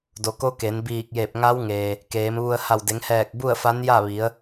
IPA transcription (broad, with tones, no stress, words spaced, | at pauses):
do˩˧ko˧˥ke˩˧n biː˧˩k̚je˧˩p̚ŋa˧˥wŋeː˩ | keː˩˧mʋu˧ə̯ ha˧˩wde˩˧ŋhɛː˧˩k̚ bu˥˨ə̯fa˧˥nja˥˨ʋi˩˧ə̯